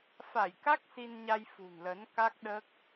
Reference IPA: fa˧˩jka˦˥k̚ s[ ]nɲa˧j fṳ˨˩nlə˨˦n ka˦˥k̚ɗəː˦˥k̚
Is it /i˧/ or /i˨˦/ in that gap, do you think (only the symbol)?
i˧